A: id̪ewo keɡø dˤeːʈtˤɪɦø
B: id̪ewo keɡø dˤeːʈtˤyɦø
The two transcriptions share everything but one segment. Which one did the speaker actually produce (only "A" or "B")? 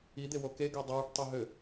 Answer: B